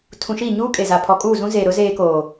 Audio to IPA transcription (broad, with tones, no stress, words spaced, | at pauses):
tʰũ˨ʃi˦˨ ɲuː˦kʼe˨ za˨pʰɔ˨kʼuː˦˨ zũ˦zeː˨ɾʊ˨˦ zeː˦koː˨